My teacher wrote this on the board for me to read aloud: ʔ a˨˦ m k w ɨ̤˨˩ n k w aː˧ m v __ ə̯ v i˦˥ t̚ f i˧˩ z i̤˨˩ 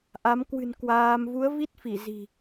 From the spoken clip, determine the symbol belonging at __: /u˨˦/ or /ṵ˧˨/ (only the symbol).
u˨˦